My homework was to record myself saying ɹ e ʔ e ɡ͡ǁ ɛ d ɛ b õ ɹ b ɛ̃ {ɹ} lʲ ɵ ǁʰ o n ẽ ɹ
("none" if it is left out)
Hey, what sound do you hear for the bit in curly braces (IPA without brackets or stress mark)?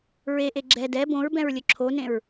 ɹ